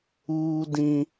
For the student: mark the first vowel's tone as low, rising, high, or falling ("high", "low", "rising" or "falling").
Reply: high